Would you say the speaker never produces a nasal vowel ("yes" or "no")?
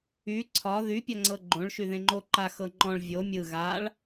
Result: no